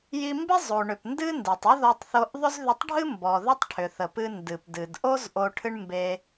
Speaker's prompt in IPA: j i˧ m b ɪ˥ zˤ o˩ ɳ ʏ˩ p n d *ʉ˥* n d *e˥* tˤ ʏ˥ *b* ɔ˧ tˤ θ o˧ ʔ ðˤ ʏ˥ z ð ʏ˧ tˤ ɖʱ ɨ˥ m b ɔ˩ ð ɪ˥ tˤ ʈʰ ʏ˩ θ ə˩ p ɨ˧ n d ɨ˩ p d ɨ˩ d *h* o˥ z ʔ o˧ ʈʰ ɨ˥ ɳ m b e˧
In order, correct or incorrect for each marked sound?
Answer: incorrect, incorrect, incorrect, incorrect

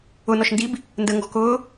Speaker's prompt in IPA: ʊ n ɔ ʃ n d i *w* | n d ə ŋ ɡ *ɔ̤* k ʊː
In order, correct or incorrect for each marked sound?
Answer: incorrect, correct

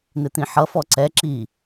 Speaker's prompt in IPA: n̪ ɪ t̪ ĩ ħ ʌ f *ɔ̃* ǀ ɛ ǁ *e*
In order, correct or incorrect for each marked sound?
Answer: incorrect, incorrect

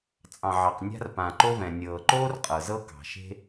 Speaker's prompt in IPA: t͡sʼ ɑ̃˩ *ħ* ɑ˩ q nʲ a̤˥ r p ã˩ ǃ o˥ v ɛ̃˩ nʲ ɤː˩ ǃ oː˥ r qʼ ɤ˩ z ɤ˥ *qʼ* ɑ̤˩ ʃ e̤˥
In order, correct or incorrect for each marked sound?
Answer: incorrect, incorrect

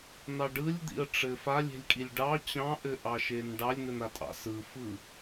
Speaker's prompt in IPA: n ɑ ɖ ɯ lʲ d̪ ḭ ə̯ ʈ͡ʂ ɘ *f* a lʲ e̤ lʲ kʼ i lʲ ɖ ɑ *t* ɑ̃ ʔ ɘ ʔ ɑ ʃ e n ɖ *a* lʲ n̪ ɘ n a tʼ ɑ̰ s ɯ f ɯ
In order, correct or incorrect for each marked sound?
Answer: correct, incorrect, incorrect

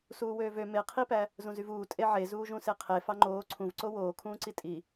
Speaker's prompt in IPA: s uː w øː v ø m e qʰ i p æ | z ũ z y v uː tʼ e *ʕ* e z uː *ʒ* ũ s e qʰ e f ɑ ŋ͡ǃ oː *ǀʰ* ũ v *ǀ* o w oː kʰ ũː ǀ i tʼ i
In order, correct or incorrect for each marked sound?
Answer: correct, correct, correct, correct

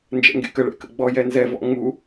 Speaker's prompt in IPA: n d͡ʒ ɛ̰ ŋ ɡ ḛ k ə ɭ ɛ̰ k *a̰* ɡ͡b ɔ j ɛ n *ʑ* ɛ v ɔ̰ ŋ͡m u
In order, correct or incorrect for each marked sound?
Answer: incorrect, incorrect

